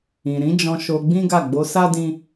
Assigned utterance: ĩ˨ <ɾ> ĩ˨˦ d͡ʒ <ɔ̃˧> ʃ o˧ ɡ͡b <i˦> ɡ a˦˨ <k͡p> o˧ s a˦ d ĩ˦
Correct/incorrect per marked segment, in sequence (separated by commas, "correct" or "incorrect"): correct, correct, incorrect, incorrect